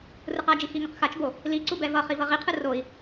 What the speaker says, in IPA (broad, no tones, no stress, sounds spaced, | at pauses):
r ɯ q a d͡ʒ i x i ŋ ʌ q x a t͡ʃ b o | l i ǀ u b ɛ v ʌ χ i v ʌ ʁ i qʰ ɯ r o i̯